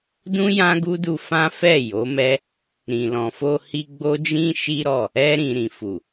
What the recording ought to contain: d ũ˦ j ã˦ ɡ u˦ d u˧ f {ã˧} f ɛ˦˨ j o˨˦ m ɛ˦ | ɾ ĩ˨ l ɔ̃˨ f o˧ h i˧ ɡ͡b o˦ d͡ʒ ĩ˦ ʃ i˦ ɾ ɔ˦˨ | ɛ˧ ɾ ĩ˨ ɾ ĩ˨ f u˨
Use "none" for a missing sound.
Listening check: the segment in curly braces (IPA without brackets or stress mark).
ã˦